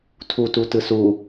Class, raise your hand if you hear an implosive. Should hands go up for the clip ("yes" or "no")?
no